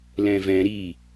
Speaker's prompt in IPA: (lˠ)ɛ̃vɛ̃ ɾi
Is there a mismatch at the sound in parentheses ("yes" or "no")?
yes